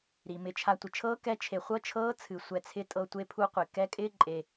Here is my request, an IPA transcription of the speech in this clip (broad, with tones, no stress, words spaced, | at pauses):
ɾi˩mɪ˩˧t͡ʃʰa˧ tʷɪ˩t͡ʃʰɤː˧˥ kɛ˧˥ t͡ʃʰe˩χʷɤ˧˥t͡ʃʰɤː˧˥ t͡sʰɨ˩sʷɛ˩˧t͡sʰɪ˧˥ tʼɤ˧tʷe˧˥pʰu˧˥qʷɪ˩ kɛ˧˥kʼɪː˥ǃʼe˩